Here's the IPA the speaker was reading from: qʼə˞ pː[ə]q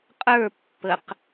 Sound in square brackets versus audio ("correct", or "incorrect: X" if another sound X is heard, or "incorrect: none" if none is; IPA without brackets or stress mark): correct